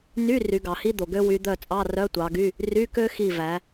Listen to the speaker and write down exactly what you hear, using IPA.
n y˧˥˧ r y˨˦ ɡ ɑ˨ h i˥ d̪ o˨ ɡ ø˥ w y˨˦ d̪ œ˦˨ t͡sʼ ɑ˧˥˧ r œ˧˥˧ tʷ ɑ˨˦ ɡ y˧˥˧ | r y˧˥˧ k ø˥ x i˦˨ v æ˨˦

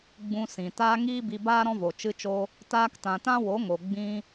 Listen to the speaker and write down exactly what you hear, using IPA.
ɡ͡b ũ˧ s ĩ˨ t aː˦ ŋ iː˦ b i˧ b aː˦ ɾ ɔ̃˦ v o˨ t͡ʃ ɨ˦ t͡ʃ o˦ | t aː˧ k t ã˨ t ã˦ w o˨˦ ŋ o˨ ɡ͡b ĩ˦

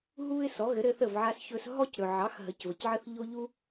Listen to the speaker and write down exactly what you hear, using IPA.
ɦ u˥ ɪ̯ s ɔ˩˥ ɣ ɘ˩˥ ɾ ɘ˧ θ ə˥˩ v ʕ a˧ s ç ɵ˧ s ɦ ɔ˥ c ɾ ɵ˩ ʕ ɑ˩˥ x ɦ ə˩˥ c v ə˩ c ʕ ə˥ θ ʎ o˥ ʎ u˥

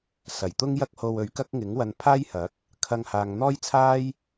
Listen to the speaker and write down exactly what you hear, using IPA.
s ɐ˨˩ j t̪ ʊ˥ ŋ j ɐ˥ k̚ h o˧ w ɵ˨˥ ɥ k ɐ˥ k̚ ŋ ɪ˨˥ ŋ w ɐ˧ n pʰ aː˥ j h ɐ˨˥ k̚ | kʰ ɐ˧ ŋ h aː˨ ŋ n̪ ɔː˥ j t͡sʰ aː˥ j

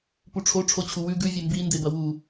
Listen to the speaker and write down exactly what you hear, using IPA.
p u ʈ͡ʂʰ o ʈ͡ʂʰ o t͡ɕʰ u w ʉ ɡ ʉ vʲ e m b i n d e b ɐ w u

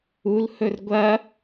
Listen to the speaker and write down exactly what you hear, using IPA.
u l h ɵ r ɡʷ ɐ

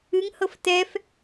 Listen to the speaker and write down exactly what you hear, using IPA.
ɨ ŋ h ɤ f t ɛ f

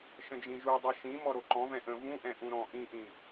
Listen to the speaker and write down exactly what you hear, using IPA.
ʃ ə̃ d͡ʒ ĩ ʒ u dˤ ʌ ʃ ĩ m ɔ ɾ o ǃ ɔ̃ v ɛ̃ ʔ ə̃ v ũ ʔ ɛ̃ ʔ ũ ɾ ɔ̃ ʔ ĩ ʔ ĩ

